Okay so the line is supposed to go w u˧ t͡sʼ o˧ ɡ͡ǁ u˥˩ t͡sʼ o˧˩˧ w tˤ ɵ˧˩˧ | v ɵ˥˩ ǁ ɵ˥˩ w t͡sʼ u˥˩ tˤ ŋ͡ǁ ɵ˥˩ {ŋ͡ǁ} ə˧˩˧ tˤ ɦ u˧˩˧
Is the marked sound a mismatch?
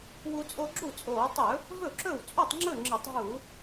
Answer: no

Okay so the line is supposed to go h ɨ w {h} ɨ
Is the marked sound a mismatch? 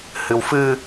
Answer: yes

